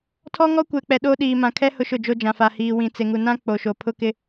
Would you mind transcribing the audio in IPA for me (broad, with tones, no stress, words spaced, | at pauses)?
tʰɔ˦ŋɔ˦kʷɛ˨k͡pɛ˨ ɗo˦ ɗiː˨mã˨kʰɛ˦ hʊ˦ʃʊ˦˨d͡ʒo˦d͡ʒã˨ fa˨hiː˨ wĩ˨t͡se˨ŋu˨nã˦ k͡po˨ʃo˨ pʰʊ˦kɪ˦